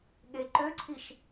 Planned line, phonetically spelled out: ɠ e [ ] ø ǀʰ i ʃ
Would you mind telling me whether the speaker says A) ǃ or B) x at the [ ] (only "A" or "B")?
A